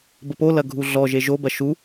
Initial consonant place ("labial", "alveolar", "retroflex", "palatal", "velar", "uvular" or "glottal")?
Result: labial